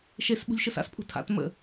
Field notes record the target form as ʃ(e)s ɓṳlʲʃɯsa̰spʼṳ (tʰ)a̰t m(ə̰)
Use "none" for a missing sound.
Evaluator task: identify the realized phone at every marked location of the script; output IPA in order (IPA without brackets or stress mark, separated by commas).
e, tʰ, ə̰